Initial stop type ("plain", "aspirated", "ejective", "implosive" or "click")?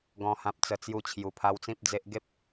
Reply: plain